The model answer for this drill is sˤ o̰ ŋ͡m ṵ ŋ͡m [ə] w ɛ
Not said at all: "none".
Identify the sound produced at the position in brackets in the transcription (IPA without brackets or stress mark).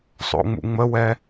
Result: ə